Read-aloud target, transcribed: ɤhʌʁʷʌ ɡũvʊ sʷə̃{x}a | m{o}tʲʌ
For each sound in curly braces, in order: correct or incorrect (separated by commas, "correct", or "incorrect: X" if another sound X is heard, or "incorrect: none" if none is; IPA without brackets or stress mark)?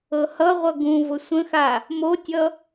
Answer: correct, correct